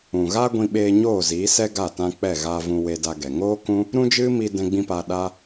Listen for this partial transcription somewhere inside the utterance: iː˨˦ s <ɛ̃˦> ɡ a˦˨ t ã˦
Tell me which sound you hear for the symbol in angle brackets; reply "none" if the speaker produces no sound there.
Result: ɛ˦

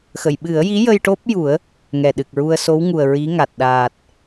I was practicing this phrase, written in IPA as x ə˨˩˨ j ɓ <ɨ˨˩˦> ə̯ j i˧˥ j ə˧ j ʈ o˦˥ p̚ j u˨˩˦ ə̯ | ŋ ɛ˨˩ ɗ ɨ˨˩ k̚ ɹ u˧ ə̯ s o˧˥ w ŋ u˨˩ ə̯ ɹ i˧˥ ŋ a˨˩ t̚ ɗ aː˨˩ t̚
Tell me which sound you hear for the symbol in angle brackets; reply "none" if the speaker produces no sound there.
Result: ɨ˨˩˦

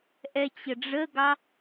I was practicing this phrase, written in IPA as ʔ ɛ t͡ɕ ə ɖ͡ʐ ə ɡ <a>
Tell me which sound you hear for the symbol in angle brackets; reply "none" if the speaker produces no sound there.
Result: ɑ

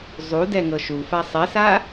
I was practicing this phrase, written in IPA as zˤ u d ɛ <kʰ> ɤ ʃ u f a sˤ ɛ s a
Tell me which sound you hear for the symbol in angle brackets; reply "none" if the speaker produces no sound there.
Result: ŋ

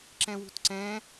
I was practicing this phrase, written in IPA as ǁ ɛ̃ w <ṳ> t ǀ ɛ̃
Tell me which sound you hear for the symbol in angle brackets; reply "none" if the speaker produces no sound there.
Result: ṳ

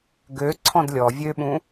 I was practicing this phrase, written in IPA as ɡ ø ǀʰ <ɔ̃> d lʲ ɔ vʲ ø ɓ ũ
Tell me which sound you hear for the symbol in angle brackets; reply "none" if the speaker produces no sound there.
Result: ɔ̃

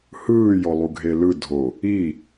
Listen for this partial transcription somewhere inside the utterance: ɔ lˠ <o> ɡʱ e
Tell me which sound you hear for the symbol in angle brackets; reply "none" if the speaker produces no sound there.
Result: u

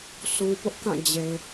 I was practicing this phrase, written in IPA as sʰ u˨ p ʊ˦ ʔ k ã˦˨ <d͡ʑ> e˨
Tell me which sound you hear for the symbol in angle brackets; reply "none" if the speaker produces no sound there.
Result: d͡ʑ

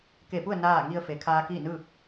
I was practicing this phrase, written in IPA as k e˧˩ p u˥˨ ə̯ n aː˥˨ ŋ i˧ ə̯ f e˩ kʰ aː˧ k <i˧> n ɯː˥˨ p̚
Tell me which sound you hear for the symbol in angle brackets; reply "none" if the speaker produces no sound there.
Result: i˥˨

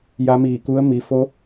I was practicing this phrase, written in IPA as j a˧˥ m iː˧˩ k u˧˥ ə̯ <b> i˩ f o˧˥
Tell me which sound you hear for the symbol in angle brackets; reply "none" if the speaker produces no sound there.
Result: m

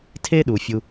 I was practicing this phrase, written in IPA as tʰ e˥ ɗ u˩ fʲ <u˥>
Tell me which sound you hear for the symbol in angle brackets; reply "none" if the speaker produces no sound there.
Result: u˧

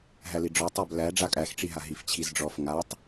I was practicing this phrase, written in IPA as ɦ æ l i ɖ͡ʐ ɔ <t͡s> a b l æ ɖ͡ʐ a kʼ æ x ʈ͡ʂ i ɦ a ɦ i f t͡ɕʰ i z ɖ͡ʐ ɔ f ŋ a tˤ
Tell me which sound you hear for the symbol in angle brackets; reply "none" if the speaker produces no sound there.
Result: tˤ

